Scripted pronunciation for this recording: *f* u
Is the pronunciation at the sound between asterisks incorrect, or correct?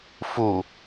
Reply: correct